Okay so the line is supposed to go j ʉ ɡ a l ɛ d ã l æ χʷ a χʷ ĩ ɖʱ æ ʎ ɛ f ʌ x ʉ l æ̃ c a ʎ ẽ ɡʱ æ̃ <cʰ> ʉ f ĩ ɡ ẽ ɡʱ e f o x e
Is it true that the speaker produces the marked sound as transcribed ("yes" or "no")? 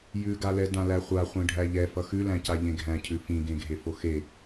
yes